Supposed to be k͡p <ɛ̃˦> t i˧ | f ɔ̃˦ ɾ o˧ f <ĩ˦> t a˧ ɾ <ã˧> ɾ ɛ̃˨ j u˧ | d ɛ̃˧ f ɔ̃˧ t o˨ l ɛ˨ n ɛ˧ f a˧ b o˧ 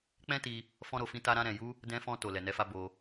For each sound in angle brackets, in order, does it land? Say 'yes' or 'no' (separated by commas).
yes, yes, yes